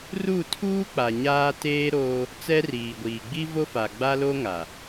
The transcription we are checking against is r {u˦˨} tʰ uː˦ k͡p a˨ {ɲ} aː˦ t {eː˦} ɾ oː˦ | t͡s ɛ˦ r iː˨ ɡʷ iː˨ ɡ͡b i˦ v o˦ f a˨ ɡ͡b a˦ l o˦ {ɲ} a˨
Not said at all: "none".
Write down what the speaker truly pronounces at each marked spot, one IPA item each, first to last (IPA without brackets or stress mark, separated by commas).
u˦˨, ɲ, eː˦, ŋ